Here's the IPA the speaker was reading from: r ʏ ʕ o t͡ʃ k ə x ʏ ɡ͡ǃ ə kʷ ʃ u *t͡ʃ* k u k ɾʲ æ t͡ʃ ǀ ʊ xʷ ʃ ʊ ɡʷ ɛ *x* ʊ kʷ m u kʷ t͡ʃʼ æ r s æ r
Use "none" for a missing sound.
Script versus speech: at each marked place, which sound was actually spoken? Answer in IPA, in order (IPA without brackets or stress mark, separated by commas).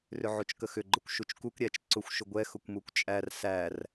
t͡ʃ, x